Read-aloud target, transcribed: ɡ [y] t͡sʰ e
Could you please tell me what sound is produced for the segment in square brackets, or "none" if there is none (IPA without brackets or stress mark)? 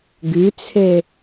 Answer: y